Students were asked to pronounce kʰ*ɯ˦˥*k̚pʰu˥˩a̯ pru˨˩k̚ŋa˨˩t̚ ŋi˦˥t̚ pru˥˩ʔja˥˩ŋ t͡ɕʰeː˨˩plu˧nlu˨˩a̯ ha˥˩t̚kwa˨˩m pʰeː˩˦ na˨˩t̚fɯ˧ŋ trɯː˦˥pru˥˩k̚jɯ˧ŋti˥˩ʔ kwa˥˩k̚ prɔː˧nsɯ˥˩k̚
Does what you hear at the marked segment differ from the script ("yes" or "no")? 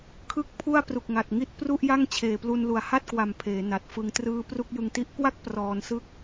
yes